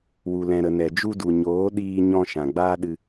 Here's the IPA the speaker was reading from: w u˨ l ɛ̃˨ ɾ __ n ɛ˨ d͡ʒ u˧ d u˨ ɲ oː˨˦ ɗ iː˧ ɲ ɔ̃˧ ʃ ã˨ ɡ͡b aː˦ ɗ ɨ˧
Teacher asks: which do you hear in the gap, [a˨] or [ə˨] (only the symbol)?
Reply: ə˨